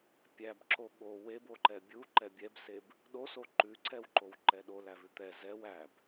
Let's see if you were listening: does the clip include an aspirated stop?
no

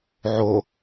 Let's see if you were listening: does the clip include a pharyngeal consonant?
yes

